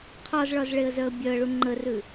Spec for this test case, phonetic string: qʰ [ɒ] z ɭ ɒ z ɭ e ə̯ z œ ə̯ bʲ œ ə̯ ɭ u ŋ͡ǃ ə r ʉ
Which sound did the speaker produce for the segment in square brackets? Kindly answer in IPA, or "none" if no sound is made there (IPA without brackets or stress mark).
ɒ